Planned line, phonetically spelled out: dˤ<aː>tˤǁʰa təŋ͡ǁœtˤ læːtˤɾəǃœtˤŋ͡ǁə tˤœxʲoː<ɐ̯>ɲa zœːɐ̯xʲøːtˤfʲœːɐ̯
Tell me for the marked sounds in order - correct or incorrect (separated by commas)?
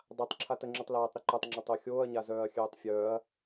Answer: incorrect, correct